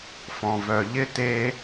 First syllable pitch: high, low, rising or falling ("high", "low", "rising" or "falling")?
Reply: low